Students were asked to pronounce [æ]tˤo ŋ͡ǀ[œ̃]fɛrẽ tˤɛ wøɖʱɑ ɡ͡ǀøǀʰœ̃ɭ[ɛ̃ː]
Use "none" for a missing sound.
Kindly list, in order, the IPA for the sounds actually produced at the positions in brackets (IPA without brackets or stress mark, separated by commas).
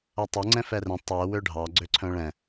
ɛ, ɛ̃, ɛ̃